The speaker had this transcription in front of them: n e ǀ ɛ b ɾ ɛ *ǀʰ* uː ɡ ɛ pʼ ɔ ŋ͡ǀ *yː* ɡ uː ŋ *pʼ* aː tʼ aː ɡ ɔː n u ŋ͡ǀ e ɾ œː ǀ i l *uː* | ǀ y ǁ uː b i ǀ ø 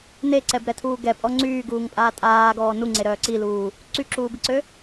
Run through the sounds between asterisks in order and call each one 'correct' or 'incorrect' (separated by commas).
incorrect, correct, correct, correct